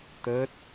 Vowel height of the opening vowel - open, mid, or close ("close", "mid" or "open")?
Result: mid